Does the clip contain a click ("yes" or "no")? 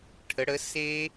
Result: no